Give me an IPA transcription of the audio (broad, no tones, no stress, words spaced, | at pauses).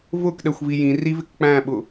vʊkɗɛxʷvi jĩrivɪk k͡pæ̃ɓʊ